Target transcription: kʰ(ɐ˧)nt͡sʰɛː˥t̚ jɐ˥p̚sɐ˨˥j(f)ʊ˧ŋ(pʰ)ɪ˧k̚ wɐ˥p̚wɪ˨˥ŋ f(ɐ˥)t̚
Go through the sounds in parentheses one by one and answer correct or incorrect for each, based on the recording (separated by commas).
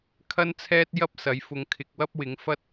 incorrect, correct, incorrect, correct